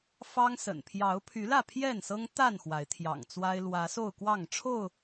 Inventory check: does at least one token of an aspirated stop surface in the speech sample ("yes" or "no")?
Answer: yes